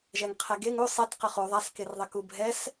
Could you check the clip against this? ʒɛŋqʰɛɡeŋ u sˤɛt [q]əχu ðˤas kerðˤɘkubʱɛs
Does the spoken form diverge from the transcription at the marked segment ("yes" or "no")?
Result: no